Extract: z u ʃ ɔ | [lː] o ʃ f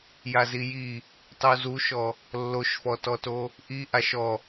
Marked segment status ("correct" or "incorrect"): correct